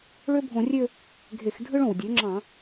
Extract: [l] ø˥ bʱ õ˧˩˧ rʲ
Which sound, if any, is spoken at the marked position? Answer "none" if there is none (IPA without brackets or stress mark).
ɭ